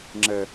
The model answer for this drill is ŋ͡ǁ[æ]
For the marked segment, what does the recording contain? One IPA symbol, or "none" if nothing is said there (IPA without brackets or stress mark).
ə